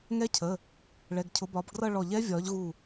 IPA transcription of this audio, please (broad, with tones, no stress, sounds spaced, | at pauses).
ŋ ɛ˦˥ cʰ ə˩˧˩ | ɭ ɛ˩˧˩ ɡ cʰ ʊ˨˦ b ɒː˨˦ b ɡ r ʌ˥˧ ɭ ɔ˧˩ ʎ ɛ˦˥ vʲ ɒː˨˦ ʎ ɣ u˧˩